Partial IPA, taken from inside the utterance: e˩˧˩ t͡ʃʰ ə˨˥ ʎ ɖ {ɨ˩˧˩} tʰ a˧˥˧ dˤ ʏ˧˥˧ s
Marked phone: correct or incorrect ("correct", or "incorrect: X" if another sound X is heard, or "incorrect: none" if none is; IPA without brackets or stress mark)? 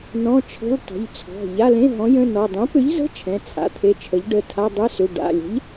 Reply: incorrect: ə˩˧˩